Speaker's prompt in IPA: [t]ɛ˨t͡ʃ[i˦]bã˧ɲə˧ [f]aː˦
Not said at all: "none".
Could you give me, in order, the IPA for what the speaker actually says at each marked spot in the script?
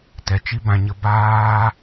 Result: t, i˦, b

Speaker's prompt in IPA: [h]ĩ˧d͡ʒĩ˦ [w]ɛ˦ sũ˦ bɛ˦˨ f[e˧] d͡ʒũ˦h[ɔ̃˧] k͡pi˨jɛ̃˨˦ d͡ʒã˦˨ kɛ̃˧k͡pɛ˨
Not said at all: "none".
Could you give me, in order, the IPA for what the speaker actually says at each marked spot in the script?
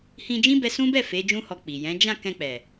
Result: h, b, e˨˦, ɔ˧

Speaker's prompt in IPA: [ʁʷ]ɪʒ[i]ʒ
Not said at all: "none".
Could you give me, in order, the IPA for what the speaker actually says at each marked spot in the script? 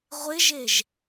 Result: ʁʷ, e

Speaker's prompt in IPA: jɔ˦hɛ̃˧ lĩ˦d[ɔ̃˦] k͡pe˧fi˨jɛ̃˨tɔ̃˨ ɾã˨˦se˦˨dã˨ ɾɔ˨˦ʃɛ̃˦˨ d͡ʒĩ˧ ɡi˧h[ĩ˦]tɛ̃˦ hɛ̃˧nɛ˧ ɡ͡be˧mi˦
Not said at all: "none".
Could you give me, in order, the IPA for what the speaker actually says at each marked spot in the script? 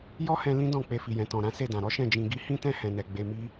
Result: ɔ̃˦˨, ĩ˦

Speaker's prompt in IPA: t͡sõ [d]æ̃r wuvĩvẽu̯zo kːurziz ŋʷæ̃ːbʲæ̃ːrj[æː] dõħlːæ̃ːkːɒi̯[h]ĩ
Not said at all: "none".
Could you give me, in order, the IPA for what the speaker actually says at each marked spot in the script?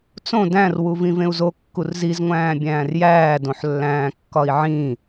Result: d, æː, ʕ

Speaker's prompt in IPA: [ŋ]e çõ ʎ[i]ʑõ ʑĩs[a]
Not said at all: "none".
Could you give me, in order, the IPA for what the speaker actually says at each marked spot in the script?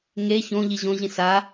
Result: ŋ, i, a

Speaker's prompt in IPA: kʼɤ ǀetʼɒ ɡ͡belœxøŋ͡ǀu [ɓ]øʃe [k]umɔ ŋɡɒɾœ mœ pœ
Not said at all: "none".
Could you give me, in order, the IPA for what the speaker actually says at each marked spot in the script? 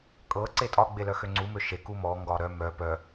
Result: m, k

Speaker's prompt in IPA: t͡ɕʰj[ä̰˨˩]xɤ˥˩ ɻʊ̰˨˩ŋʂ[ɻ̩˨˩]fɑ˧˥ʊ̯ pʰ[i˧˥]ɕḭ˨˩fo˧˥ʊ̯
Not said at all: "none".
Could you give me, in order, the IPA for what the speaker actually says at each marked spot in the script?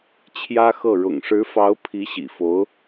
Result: ä˥, ɻ̩˧˥, i˧˥

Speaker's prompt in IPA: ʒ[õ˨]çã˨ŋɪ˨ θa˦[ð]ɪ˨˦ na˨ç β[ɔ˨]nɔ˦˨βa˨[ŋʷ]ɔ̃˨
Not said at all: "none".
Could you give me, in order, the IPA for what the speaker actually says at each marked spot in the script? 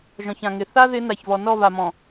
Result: ɔ̃˨, ð, ɔ˨, m

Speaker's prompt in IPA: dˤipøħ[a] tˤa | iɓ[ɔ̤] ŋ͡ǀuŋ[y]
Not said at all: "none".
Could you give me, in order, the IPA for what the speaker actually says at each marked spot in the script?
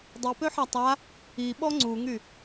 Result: a, ɔ, y

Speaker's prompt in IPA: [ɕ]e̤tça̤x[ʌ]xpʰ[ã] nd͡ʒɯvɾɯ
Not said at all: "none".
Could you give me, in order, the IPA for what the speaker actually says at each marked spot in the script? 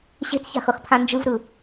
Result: ɕ, ʌ, ã

